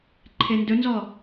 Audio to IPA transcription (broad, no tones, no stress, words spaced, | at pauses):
ǃʰendɵnzɔ